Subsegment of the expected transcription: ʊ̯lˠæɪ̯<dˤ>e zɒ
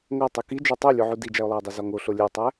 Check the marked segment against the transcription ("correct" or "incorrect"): correct